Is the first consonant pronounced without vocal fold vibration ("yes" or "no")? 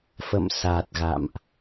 yes